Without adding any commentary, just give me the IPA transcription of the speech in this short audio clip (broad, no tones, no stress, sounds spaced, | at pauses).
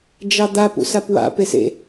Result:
d͡ʒ ɑ d̪ a p ṵ s a p w a̰ p e s ḛ